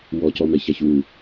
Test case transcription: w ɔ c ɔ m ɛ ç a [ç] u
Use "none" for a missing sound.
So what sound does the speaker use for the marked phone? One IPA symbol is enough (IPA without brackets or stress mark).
ç